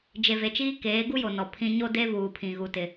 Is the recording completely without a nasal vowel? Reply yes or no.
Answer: no